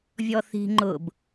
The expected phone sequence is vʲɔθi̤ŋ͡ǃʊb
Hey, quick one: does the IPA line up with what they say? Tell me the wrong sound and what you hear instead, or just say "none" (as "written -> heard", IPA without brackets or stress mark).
none